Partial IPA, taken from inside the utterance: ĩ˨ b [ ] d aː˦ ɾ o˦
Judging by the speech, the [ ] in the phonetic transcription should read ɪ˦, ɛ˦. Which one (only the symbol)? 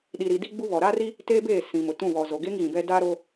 ɛ˦